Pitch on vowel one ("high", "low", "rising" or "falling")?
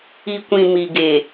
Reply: low